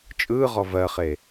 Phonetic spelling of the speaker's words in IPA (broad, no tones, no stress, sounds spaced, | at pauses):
t͡ʃʼ ɯː ʁ ɔ v ɜ χ e